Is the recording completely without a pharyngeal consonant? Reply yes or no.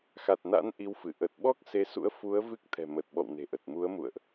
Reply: yes